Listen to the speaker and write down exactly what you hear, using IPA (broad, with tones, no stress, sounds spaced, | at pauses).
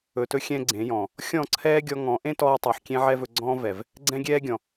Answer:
ɵ˨ t ɵ˧ xʲ ɛ̃˦ ɡ͡ǀ ẽ˨˦ j ɔ̃˨ | xʲ ɔ̃˦˨ ǀʰ ɛː˦ ɡʲ ɔ˧ ŋ ɔ̃˨˦ ʔ ẽ˦ t ɔː˧ tˤ ɵː˨ ħ kʲ ẽ˦ ʕ ɛ˦ v ɵ˧ ɡ͡ǀ ɔ̃ː˦ v ɛ˨ v | ɡ͡ǀ ɛ̃˦ ɡʲ ɛː˦ ɡʲ ɔ̃˨